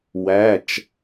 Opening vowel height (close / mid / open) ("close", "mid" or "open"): open